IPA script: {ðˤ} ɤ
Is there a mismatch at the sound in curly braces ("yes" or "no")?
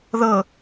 yes